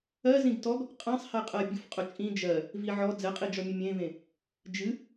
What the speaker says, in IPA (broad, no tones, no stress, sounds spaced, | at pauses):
ɜ z ĩ ɡ t ɔ ɡ | qʼ ɛ̃ sˤ h ɛ qʼ ɜ bʲ ʊ f qʼ ʊ t͡ʃʼ ĩ d͡ʒ ɜ | v i ʕ ɔ d͡z ɛ qʼ i d͡ʒ ɔ mʲ ʊ mʲ ẽ v ẽ | d͡ʒ ɨ